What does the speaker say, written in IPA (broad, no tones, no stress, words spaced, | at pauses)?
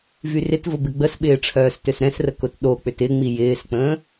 vyrɪtvʊ bɪɡ͡bəsɓɪː ʈ͡ʂʰœːstøsɾɛ̃srə kʊtɗok͡pʏt ɪŋ͡mi jɪːsk͡pə̃ː